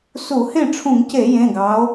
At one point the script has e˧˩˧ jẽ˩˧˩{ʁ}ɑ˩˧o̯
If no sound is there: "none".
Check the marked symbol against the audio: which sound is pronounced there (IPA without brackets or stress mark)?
ɡ